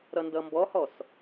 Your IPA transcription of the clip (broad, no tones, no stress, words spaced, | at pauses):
ɾʌndʌmbɔhɔs